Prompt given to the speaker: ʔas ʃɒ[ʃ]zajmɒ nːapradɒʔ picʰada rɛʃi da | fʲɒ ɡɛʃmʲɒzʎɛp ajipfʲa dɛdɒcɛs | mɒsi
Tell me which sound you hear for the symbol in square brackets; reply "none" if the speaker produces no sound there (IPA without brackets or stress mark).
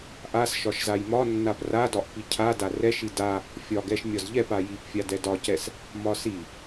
ʃ